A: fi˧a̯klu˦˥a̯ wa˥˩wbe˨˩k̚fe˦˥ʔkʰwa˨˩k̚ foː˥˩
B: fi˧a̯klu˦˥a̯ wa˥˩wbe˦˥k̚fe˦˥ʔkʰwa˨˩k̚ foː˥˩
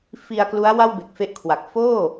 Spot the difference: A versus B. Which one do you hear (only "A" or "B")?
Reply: A